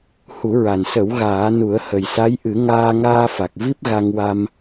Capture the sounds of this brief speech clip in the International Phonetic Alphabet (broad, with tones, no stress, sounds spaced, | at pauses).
h u˨˩˦ ɹ a˨˩ n s ə˨˩˦ w ɣ aː˨˩˦ n u˨˩˦ ə̯ h ə˨˩ j s a˧˥ j ʔ ɨ˨˩˦ ŋ aː˧ ŋ aː˧ f a˨˩ k̚ v i˦˥ p̚ ɣ a˧ ŋ w a˧ m